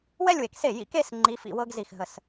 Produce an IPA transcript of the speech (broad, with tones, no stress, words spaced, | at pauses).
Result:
wɛ˥˧lʲwe˨kse˥˩ jḭ˧˥ke˥˧s ŋ͡ǃi˧˥fḭ˥˧wɤ˥ɡ zi˥˩xɦə˥˧s